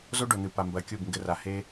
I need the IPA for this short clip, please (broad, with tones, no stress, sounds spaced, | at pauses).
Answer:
z o˦ ɖ o˨ n̪ ɨ˨ p a˨ m b ɐ˨˦ kʲ u˦˨ b ŋ ɡ ɘ˦ r a˧ h e˦